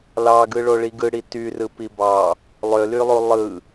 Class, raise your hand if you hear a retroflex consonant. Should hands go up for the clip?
yes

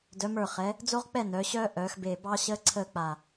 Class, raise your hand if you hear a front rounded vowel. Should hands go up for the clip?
yes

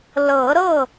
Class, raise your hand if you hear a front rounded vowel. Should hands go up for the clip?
no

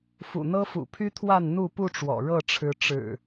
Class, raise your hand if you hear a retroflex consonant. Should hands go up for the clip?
yes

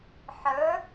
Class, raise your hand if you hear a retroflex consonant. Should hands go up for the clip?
no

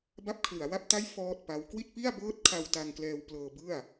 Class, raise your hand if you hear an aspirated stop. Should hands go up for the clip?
yes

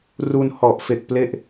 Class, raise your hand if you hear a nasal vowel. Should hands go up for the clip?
no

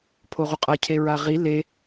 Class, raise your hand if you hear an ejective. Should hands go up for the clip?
yes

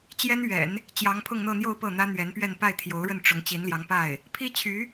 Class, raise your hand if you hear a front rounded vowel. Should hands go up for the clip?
yes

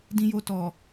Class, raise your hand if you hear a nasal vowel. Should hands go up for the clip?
yes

